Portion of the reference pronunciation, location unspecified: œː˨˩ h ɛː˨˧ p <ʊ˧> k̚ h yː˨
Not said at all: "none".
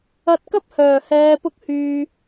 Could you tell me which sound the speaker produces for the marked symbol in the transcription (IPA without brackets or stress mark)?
ʊ˧